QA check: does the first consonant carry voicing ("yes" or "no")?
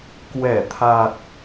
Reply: no